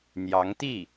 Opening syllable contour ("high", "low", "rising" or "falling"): rising